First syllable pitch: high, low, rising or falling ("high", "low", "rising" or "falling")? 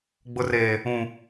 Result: low